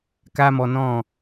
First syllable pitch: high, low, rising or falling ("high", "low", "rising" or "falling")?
high